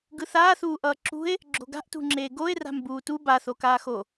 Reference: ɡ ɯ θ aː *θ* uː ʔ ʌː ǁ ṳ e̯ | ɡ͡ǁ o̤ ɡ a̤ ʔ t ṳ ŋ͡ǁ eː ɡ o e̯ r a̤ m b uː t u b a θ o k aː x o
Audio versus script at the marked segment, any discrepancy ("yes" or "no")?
no